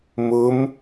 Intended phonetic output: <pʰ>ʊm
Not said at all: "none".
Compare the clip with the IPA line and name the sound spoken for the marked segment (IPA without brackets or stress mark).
m